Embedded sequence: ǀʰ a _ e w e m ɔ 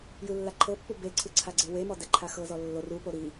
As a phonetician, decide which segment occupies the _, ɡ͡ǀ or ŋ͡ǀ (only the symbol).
ɡ͡ǀ